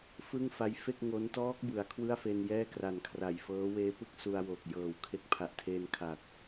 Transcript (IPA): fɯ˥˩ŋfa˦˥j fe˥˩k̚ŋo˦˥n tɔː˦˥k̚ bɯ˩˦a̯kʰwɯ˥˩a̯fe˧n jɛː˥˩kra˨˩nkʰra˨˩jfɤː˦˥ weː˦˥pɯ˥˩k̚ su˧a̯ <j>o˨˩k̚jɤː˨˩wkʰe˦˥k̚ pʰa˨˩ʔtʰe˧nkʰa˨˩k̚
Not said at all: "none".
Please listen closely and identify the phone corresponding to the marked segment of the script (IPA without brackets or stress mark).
w